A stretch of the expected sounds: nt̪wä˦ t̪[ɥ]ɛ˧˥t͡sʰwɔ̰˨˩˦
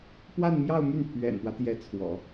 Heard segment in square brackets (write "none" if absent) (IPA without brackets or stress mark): j